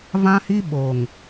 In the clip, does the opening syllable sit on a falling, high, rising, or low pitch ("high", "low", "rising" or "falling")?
high